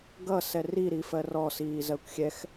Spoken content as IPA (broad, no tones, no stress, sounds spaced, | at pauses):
ɡ ʌ s ɛ r i ɾ i f ɜ r ɔ s iː z ɜ kʷ xʲ ɛ x